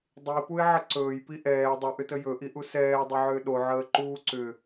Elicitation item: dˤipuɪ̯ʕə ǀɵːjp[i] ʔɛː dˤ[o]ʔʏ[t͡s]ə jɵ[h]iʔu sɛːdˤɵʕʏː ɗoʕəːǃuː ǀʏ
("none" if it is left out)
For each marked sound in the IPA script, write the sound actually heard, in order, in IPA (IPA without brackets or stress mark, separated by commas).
i, ɵ, t, ʔ